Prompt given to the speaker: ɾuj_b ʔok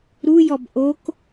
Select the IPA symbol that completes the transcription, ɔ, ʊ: ɔ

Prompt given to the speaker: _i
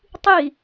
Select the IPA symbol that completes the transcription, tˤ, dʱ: tˤ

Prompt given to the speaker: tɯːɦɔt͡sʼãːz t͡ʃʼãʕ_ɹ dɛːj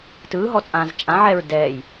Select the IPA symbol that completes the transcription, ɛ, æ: ɛ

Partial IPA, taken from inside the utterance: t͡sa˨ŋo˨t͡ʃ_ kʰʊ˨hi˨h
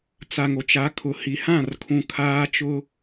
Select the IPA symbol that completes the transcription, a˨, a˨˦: a˨˦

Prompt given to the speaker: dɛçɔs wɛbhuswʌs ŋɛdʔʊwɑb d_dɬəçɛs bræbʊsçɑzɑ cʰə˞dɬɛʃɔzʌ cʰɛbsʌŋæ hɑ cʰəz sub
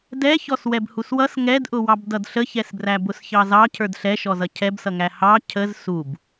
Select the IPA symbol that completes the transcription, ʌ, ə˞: ʌ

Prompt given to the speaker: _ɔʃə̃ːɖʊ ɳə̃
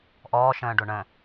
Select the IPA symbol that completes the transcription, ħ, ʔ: ʔ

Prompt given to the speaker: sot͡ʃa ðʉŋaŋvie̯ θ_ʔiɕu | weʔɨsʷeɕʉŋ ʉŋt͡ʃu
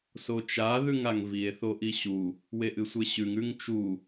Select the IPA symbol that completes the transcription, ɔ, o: o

